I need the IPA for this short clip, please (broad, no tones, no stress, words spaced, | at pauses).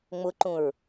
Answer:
ŋ͡mʊǃũɹ